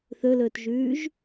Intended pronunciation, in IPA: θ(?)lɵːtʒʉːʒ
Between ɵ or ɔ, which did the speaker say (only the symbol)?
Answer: ɵ